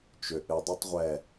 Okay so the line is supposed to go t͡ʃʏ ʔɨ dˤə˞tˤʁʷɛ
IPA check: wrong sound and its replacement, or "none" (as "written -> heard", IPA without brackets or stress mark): none